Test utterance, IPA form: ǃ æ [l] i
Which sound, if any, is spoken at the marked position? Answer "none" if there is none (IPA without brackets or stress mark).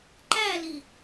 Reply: l